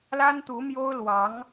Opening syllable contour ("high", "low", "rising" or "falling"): high